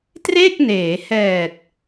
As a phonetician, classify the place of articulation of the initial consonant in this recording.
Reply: alveolar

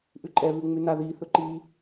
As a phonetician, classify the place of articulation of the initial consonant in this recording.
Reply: glottal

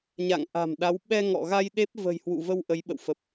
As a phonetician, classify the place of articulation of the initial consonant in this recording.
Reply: palatal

